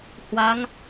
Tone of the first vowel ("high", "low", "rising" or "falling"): rising